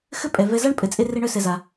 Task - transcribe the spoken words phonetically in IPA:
xɘ˥pʼɛ˩ vɛ˨za˥ɳ pʼɘ˨t͡sʼe˦re˦ ɳœ˦sɛ˨za˩

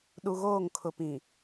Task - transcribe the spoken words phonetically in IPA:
ɗu˨ɣoː˦˨ŋ kʰʊ˨pĩ˨

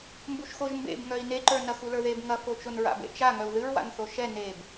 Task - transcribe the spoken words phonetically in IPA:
mbuʃxoʒmbḛb ŋœi̯neǃə˞ nɐxulə˞ðeb ŋɐfot͡ʃon ɹa̰bḛt͡ʃa ŋœu̯ðɨɹwa̰n θoʃɛ neb

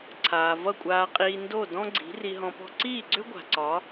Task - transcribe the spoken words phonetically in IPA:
ǀʰaː˩ vʌ˥˩kʷʼaː˧qʼiː˧ ndo˥˩ dɔ̃˥ɡ͡ǀi̤˩˥ ri˧ɦɔ̃˧pɔ̤˥ ǀiː˥˩ɡ͡ǀʏ˥ ɡʷa̤˩ǀɒ˩˥

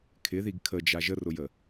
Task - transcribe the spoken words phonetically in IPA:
kʰɪðiɡ kʰəd͡ʒa ʒərʊjə

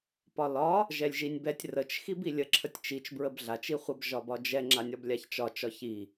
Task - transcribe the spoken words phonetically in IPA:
pɒlɒ | ʒɛlʲʒinʲbɛtʲ rət͡ʃ xibilʲə ǁʰətʲt͡ʃit͡ʃ bɹəbɮat͡ʃ iχʷəb ʒɒbɒd͡ʒɛ ŋ͡ǁanʲɒblʲaçt͡ʃɒ t͡ʃɒçi

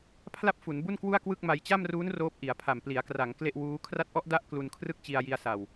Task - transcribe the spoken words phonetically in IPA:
pʰla˥˩p̚fu˩˦nbu˥˩nkwu˥˩a̯ kwɯ˥˩k̚ma˧j t͡ɕa˥˩mruː˦˥n roː˦˥p̚ʔi˩˦a̯pʰa˨˩m pli˩˦a̯kra˩˦ŋ kle˥˩ʔwuː˦˥ kʰra˦˥t̚ʔɔ˦˥ʔda˦˥ʔ klu˧nkʰrɯ˥˩k̚ t͡ɕi˧a̯ji˧a̯sa˨˩w

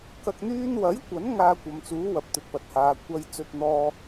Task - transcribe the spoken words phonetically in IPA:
kɐ˨k̚n̪yː˧nwɐ˨˥jkʷɐ˨˥n ŋaː˧kʷɐ˨mt͡suː˨˥ wɐ˨p̚t̪ɵ˨t̚pɐ˨˥t̚haː˨˧ kʷɐ˧j t͡sɵ˧t̚n̪ɔː˧

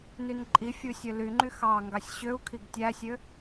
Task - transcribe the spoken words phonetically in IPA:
nynǃʼifʲu sʲølyŋ͡ǃy xɑ ŋɡɑsʲɕøu̯kʰiɡ tʲæsʲø

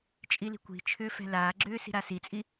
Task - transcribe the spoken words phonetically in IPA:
t͡ʃʼili̤kʷi̤t͡ʃʰʏː fɛ̤laːɡ͡ǁʏː si̤ɾasit͡sʼi

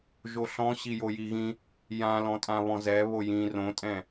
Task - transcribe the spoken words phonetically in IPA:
ʒoɬɔ̃ ɕijojiɣĩ | jã lɔ̃tʼãβɔ̃zɛ βojĩ rõtʼɛ̃

